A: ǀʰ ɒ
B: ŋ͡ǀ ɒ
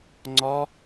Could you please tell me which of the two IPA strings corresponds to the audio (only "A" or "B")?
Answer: B